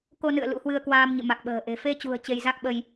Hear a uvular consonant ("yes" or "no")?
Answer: no